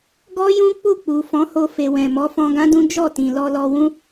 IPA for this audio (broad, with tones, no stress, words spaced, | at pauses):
ɡɔ˦jũ˦k͡pu˦˨ k͡pu˨ fɔ̃˨˦ho˧ fe˨ wɛ̃˨ mɔ˨˦fɔ̃˧ɡã˦dũ˦ d͡ʒɔ˦˨tĩ˨ lɔ˧lɔ˧wũ˦